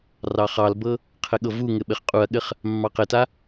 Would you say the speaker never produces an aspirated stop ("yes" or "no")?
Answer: no